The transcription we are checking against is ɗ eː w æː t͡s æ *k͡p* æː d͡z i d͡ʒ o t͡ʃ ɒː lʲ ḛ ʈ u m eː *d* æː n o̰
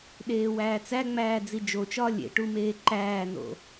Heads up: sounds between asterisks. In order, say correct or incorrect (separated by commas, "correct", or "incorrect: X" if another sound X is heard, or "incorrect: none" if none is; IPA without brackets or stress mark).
incorrect: ŋ͡m, incorrect: ǃ